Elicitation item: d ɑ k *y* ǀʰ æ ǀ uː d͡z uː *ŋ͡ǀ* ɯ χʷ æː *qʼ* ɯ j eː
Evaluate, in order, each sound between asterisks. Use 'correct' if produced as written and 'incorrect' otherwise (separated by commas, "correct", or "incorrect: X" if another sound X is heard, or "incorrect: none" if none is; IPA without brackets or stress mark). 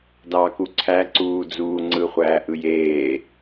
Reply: incorrect: u, correct, incorrect: ʔ